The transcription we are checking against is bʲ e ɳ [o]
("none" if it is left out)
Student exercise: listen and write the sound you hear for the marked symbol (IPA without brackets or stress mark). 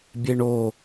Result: o